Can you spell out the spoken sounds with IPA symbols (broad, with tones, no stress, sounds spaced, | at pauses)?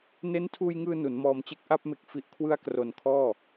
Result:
n e˦˥ n tʰ uː˧ j ŋ ɯː˧ n u˩˦ n m ɔː˧ m t͡ɕ e˥˩ k̚ ʔ a˥˩ p̚ m e˨˩ k̚ f i˨˩ ʔ kʰ w ɯ˧ a̯ k r o˨˩ n kʰ ɔː˥˩